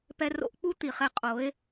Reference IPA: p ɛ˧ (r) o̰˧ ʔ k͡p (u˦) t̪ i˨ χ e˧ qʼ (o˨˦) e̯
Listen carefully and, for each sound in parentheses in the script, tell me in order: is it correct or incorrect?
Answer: correct, correct, correct

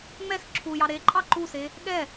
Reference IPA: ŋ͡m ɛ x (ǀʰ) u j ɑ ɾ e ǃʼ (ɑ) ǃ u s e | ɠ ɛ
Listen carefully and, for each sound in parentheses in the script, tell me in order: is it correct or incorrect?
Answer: incorrect: ǁʰ, correct

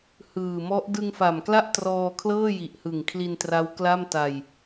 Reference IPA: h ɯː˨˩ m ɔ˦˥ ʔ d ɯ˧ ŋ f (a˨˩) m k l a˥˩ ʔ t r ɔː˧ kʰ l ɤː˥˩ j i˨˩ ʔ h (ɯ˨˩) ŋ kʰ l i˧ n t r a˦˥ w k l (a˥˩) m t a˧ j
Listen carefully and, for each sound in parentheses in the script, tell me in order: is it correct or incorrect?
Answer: correct, correct, correct

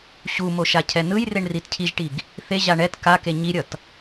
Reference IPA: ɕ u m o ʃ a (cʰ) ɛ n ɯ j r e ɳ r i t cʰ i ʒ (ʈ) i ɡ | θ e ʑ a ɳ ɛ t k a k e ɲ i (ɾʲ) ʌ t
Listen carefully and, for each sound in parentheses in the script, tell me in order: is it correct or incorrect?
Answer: correct, correct, correct

